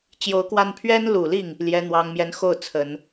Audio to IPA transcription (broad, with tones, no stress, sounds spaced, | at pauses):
t͡ɕ j o˧˥ ʊ̯ k w a˥˩ n pʰ ɥ ɛ˥ n l u˨˩ l i˥˩ ŋ | l j ɛ˧˥ n̪ w ɑ˧˥ ŋ m j ɛ˧˥ n x o˥˩ ʊ̯ t͡sʰ ə˨˩˦ n